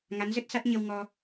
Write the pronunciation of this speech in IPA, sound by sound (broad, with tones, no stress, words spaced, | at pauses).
ŋa˨˦nzə˦˥t̚sa˦˥t̚ ɲə˧wŋɔ˧